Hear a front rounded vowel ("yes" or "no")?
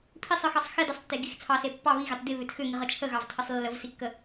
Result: yes